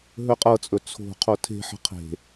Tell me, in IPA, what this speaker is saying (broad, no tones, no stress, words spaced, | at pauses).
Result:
ɦɵqʼɤt͡sʼɵ t͡sʰo̤ qʰotʰe̤ħə̤ qʰe̤